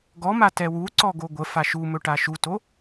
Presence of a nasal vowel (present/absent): absent